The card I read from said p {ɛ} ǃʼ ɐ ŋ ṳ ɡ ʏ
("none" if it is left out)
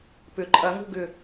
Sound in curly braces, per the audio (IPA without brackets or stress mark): ʏ